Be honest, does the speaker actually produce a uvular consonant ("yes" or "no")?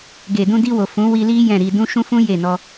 no